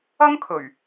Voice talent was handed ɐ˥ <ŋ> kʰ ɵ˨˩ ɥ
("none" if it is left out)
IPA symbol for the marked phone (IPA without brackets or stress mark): ŋ